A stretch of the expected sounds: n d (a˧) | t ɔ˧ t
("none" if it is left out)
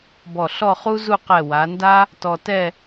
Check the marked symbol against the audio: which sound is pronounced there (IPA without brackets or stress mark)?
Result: a˥